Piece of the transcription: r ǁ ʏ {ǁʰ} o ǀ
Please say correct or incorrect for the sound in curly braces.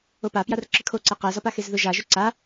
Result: incorrect